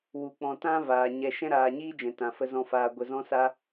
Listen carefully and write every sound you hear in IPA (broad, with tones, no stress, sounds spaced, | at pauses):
w u˨ k͡p ɔ̃˨ t ã˦ v aː˨ ɲ ɛ˧ ʃ ɛ̃˦ ɾ aː˨ ɲ iː˦ d͡ʒ ɛ̃˨ t ã˨ f ə˧ z ɔ̃˨ f aː˨ ɡʷ ə˨ z ɔ̃˧ s a˧